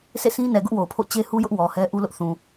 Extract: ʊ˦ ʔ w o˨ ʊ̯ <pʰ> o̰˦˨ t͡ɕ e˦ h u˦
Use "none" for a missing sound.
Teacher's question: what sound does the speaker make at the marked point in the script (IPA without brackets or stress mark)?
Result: pʰ